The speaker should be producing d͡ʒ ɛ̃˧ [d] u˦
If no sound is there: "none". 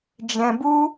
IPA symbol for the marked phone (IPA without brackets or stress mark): b